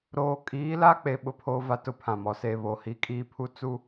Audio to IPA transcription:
ɾ oː˨ kʼ iː˨˦ l a˦ k͡p e˨ ɓ ʊ˦ pʰ oː˦ v a˦ t ʊ˦ pʰ ã˨ m ɔ˨ s e˨ β o˨ h i˨˦ kʼ iː˦ pʰ u˦ t͡s u˦˨

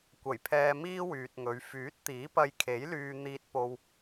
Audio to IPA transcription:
kʷ ɐ˨˩ j pʰ ɛː˧ m iː˥ w yː˨ t̚ ŋ ɵ˨˧ ɥ f yː˨˥ t̚ t̪ iː˨˥ p ɐ˧ j kʰ e˨˥ j l yː˧ n̪ iː˧ t̚ p o˧ w

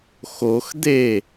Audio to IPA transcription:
x o x d̪ e

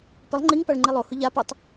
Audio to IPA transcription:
p ɪ lˠ ŋ͡ǃ i ŋ p a ɭ ŋ͡ǃ i lˠ o h ʊ ʎ a p u tˤ

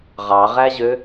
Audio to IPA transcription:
ʁ ɑ ʁ æ ʑ ø

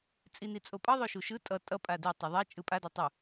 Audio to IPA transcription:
t͡sʼ i n i t͡sʼ o pʼ ʌ ðˤ o ʃ u ʃ ɯ tʼ ʌ tʼ ʌ pʼ a d i tˤ i ðˤ e t͡ʃʼ ɯ pʼ a d a tˤ u

